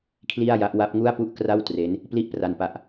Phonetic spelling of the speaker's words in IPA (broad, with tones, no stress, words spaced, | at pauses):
kʰli˥˩a̯ja˦˥ʔ wa˦˥p̚ŋu˥˩a̯pu˥˩ʔ kra˥˩wtre˦˥n | pli˥˩ʔpra˧npa˦˥ʔ